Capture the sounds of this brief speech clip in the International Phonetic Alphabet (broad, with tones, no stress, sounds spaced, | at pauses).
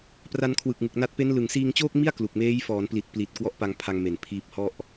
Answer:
p r a˧ n kʰ w ɯ˨˩ k̚ ŋ ɯ˨˩ k̚ n a˦˥ t̚ p e˦˥ n l ɯ˨˩ ŋ s iː˧ ŋ t͡ɕ oː˥˩ k̚ m i˥˩ a̯ k l u˨˩ k̚ m eː˦˥ j f ɔː˩˦ n p l i˨˩ t̚ p l i˨˩ t̚ k w ɔ˦˥ ʔ p a˧ ŋ pʰ a˧ ŋ m e˨˩ n pʰ iː˦˥ p̚ h ɔ˥˩ ʔ